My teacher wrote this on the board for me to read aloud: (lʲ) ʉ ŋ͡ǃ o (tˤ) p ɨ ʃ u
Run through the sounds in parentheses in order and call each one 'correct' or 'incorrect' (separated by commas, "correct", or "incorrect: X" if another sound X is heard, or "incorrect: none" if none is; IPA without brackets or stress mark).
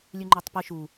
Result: correct, correct